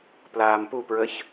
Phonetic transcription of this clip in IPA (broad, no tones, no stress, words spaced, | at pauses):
plaːmpupɹəç